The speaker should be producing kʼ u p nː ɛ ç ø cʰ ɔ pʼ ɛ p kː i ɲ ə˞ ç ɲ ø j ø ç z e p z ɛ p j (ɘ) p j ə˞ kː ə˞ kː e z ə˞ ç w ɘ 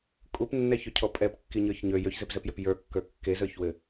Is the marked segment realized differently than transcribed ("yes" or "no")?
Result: yes